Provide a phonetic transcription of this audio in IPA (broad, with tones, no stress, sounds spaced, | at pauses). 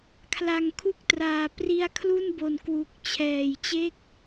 kʰ l a˨˩ ŋ kʰ u˥˩ k̚ t r aː˨˩ p r i˧ a̯ kʰ l u˥˩ n b o˨˩ n k w u˨˩ k̚ t͡ɕʰ ɛː˨˩ j t͡ɕ e˥˩ k̚